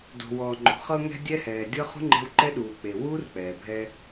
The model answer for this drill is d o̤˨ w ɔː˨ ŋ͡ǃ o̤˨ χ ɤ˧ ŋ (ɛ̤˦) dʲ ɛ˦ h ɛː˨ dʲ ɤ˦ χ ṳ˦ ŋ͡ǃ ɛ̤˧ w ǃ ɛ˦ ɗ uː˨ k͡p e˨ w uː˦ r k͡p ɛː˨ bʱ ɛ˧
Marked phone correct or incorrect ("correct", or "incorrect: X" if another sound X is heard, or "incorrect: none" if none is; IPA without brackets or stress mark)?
incorrect: ɛ̤˧